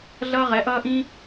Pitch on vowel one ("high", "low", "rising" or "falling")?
high